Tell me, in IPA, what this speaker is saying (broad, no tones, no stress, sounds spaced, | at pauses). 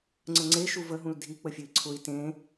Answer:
ŋ͡ǀ ə ŋ͡ǀ e ʃ u v ə ɦ ũ l dʱ i k͡p ə fʲ ɨ i̯ ǀʰ ʊ i̯ t ẽ